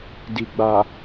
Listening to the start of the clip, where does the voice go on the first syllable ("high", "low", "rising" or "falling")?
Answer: low